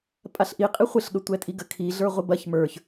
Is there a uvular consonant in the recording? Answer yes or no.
yes